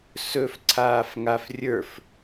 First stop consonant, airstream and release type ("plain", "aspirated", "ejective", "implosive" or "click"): click